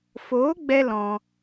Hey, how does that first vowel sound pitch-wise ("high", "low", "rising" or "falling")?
rising